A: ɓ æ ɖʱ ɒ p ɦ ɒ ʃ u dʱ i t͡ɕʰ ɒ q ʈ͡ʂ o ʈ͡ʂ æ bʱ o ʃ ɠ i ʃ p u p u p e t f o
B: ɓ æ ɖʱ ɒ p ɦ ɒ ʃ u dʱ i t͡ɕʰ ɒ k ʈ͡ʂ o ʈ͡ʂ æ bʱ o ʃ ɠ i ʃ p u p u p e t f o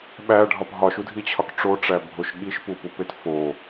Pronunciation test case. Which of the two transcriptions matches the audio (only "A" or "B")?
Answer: B